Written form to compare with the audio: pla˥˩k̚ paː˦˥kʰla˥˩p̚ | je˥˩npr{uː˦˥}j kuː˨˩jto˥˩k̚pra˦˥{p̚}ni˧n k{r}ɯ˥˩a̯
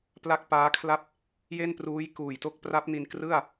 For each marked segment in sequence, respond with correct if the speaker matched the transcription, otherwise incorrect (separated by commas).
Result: correct, correct, correct